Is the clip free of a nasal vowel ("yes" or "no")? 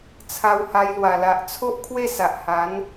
yes